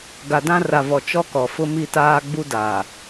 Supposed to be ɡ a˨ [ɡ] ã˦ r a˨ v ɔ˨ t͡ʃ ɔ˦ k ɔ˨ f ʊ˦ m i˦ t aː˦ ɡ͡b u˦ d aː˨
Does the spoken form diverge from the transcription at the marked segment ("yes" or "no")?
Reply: yes